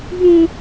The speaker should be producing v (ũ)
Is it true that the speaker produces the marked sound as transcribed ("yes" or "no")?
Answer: yes